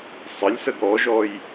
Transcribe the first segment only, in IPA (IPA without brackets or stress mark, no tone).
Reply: sˤ